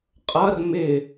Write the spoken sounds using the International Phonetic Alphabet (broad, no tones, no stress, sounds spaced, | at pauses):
qʼ ʌ r m ɪ